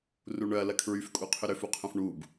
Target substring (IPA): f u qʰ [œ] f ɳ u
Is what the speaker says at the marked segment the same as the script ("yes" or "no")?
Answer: no